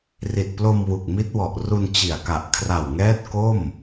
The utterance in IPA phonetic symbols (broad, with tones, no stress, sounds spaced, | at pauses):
r i˨˩ t̚ p l o˧ m w u˨˩ k̚ m i˦˥ t̚ w ɔ˨˩ ʔ r u˧ n t͡ɕ i˨˩ a̯ k a˨˩ ʔ kʰ r a˨˩ w ŋ ɛː˦˥ t̚ k o˥˩ m